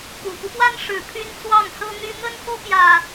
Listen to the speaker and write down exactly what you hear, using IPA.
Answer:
ku˨˩fu˦pwa˦n ʂɻ̩˨˩ pʰy˦nt͡swɑ˥˨ŋ sɤ˦n̪y˦ n̪ə˦nxu˦pjä˨˩

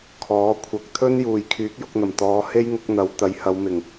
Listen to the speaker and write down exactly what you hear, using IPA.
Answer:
kʰɔː˨˥kʷʰɐ˨˥k̚t̪ʰɵ˥n juː˨jkʰyː˨˥k̚jʊ˧k̚n̪ɐ˨˩m t̪ɔː˨˧ he˥jŋʊ˨˥k̚n̪ɐ˨˥w t̪ɐ˨˥jhɐ˨˧wmɪ˨˩ŋ

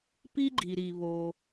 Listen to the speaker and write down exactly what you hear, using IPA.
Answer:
pi˥ɡ͡ǃi˩ɾi˩ βo˩

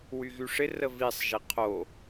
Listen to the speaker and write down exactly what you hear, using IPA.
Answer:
wyɣyʂɪ rəvisˤ ʒiqʰo

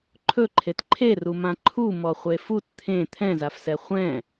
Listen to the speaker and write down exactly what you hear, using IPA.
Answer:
ǃʰɵ ǃʰetǃʰerumã ǃʰu mɔχʷefut t̪ʰẽ t̪ʰɛ̃zafsɛ χʷɛ̃

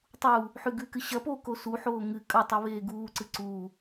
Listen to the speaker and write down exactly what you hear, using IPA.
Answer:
tˤuː | ħʉɡʉkɨ ɕɐpoː kosuħoː ŋɨ kʼɐtˤɵ βeːɡuːǀɨ ǀuː

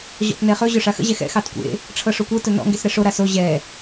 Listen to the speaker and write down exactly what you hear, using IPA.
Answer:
ʑɔ̰tnɛχɵ ʑɵʂaxə̰ ʑɛxɛ̰ xɑtkʷḛ | ʈ͡ʂʰɤʂokʷɤ tɵnɔ̰ ŋɡesɾɛʂo ɾaso ʑɛ

